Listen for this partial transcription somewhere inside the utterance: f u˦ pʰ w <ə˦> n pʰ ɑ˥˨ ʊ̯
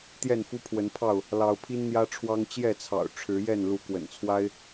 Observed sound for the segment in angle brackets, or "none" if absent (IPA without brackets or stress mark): ə˨˦